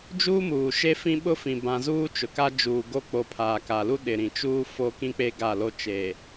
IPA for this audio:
d͡ʒuː˦muː˨ʃe˦ fĩ˦ɓʊ˦fĩ˨ bã˦ zuː˦t͡ʃʊ˨ka˦d͡ʒuː˨ ɡo˦˨k͡po˨ pʰaː˨ka˨lu˦ ɗɪ˨ɾĩ˨t͡ʃuː˦ fo˦kĩ˦k͡pe˦ ɡa˦˨lo˦ t͡ʃe˨

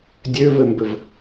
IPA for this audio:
dʲøvɘmbɘv

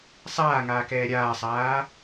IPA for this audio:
sˤaːŋaːkɛː ɾʲaːsˤaː

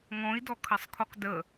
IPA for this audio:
ŋɔ̃i̯dɔkʰɐsˤkʰoq də

